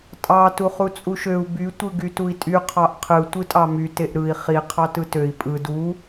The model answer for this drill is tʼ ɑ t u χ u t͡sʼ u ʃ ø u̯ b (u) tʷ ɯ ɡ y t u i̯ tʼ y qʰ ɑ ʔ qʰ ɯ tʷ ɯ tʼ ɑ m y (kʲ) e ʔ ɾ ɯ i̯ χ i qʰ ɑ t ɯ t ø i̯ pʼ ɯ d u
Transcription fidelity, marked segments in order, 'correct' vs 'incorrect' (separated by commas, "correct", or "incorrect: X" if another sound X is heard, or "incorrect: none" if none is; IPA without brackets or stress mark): incorrect: y, incorrect: t